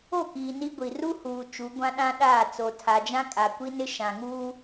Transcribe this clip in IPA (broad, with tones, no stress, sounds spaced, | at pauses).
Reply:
o˦˨ k iː˨ n i˦ ɡʷ i˨ r u˦ h uː˨ t͡ʃ u˨˦ ɡʷ ã˦ ɗ ã˦ ɗ aː˦˨ t͡s o˨ tʰ a˨ d͡ʒ ã˦ kʼ a˨ kʷ i˦ n ɪ˦ ʃ ã˨ ŋ uː˦